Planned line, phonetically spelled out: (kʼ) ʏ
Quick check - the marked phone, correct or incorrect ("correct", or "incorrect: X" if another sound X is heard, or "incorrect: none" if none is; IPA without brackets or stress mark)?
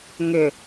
incorrect: ŋ